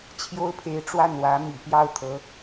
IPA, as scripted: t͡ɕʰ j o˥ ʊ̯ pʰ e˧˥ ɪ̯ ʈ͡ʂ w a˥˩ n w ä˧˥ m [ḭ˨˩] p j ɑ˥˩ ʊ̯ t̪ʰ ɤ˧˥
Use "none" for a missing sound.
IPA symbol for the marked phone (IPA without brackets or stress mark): ḭ˨˩